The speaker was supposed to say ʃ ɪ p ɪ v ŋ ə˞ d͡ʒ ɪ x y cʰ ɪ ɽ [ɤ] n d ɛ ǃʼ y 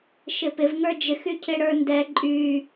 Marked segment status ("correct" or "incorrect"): incorrect